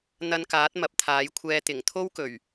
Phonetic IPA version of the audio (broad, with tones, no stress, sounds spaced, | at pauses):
n̪ ɐ˧ n k aː˨˥ t̚ m ɐ˨˥ p̚ t̪ʰ aː˨˥ j kʷʰ ɛː˧ t̪ ɪ˨˩ ŋ t̪ʰ o˥ w k ɵ˨˩ ɥ